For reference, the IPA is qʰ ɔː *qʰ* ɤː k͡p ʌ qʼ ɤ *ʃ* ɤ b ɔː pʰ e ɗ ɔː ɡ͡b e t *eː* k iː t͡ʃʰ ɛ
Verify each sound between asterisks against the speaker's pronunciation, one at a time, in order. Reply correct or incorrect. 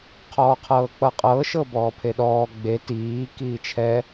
correct, correct, incorrect: iː

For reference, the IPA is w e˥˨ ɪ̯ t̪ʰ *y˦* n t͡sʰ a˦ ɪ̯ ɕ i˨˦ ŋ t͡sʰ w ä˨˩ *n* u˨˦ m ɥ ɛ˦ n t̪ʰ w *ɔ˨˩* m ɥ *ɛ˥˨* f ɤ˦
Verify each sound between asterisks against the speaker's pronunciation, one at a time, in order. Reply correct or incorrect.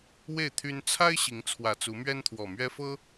correct, incorrect: t͡s, correct, incorrect: ɛ˦

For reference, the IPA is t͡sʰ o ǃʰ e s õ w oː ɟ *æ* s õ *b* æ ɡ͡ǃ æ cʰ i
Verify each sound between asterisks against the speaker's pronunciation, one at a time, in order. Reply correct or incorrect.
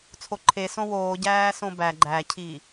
incorrect: æː, correct

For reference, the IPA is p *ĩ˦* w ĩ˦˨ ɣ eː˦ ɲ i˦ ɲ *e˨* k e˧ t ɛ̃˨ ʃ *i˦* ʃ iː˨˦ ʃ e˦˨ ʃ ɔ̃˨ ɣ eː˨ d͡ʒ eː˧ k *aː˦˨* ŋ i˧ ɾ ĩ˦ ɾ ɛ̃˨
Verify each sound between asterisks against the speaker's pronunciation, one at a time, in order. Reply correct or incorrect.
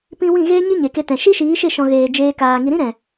correct, correct, correct, incorrect: aː˨

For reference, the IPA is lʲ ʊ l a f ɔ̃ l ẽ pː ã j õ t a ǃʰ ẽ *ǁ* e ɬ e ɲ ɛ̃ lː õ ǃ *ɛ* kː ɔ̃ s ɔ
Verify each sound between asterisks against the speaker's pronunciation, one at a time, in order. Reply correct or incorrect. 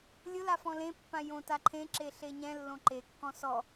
correct, incorrect: e

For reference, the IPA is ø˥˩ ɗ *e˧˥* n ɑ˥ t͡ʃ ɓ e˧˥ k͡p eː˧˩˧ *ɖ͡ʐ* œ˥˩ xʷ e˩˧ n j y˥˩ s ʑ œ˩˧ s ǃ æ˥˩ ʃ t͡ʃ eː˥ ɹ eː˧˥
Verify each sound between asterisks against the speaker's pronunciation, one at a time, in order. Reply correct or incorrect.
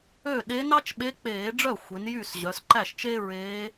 correct, correct

